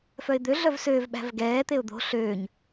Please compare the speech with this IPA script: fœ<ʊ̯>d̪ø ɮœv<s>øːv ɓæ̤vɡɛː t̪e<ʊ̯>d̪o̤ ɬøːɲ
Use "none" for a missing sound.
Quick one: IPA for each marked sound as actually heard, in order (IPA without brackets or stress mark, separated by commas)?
ɪ̯, s, ʊ̯